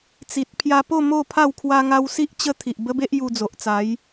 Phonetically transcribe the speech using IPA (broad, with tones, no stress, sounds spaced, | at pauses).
t͡s i˨ t̚ pʰ j a˧ p o˥˧ m o˥˧ pʰ a˥˧ w kʰ w a˧ ŋ a˧ w s i˦ ʔ t͡ɕ ə˦ t̪ʰ i˨ ʔ b ə˦ b e˦ ʔ j u˧ d͡z o˨ ʔ t͡s a˨˦ j